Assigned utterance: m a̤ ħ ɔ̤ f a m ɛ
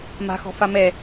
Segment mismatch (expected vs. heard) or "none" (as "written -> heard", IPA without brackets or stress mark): ħ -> x